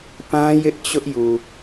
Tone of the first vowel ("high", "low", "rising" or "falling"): high